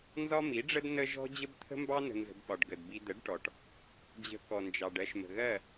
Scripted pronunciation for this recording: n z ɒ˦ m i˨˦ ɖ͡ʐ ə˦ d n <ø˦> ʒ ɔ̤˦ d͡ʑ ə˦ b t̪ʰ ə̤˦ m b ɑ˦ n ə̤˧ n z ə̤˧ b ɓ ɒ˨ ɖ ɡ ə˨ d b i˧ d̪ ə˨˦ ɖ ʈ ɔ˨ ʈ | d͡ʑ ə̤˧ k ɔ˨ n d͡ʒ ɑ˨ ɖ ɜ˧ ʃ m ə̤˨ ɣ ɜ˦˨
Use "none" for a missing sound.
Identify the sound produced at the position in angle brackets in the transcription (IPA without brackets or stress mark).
ə˦